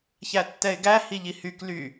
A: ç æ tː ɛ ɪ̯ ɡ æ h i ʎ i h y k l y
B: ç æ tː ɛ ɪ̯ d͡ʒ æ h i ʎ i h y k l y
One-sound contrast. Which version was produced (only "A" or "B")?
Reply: A